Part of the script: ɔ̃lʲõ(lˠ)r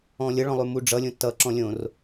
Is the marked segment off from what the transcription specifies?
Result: yes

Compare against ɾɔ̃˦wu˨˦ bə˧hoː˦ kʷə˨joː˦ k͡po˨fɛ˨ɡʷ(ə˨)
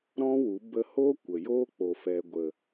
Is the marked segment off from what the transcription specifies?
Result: no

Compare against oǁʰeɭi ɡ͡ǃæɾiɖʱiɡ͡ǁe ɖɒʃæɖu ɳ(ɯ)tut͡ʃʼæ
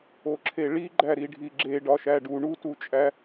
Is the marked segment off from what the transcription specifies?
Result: yes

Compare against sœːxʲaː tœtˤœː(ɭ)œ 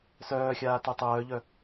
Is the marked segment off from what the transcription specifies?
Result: yes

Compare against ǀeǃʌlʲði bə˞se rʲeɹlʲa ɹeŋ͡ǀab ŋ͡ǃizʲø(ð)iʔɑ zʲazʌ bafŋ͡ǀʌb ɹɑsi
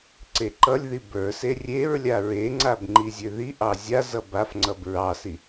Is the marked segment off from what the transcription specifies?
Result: no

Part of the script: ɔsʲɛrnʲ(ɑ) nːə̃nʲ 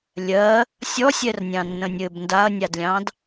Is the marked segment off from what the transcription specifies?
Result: yes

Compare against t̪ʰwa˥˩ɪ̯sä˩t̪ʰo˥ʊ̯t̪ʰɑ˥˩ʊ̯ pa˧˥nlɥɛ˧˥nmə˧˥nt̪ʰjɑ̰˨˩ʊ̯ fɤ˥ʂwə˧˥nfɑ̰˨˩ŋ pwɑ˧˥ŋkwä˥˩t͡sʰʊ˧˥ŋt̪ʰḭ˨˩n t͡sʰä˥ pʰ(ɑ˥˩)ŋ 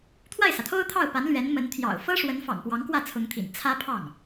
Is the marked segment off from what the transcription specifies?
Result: no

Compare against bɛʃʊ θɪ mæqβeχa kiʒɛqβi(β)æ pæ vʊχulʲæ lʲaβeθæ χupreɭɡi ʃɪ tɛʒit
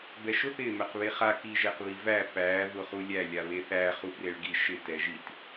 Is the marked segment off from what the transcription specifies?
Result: yes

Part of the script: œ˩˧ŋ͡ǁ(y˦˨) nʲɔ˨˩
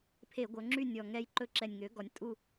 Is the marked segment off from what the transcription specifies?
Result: no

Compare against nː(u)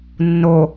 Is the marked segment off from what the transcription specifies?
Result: yes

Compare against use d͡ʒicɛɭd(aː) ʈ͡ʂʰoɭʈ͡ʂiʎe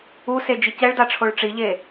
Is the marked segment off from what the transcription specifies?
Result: yes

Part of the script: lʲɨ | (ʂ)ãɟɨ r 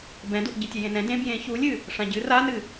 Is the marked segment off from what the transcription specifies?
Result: no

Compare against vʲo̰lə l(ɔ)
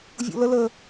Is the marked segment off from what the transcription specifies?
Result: yes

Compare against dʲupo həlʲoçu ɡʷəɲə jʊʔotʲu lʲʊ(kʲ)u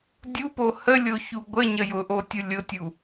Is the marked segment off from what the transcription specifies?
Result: yes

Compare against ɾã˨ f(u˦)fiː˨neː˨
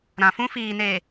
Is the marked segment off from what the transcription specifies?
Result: yes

